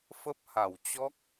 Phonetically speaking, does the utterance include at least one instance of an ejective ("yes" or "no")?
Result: no